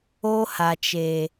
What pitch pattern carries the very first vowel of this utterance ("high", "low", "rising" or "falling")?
high